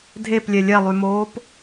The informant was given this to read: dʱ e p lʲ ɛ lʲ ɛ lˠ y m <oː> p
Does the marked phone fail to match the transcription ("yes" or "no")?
no